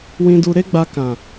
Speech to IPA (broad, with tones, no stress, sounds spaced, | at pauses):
w ĩ˧ d u˧ ɾ e˦ ɡ͡b a˧ k ã˨